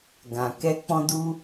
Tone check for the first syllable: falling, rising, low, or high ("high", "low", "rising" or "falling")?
low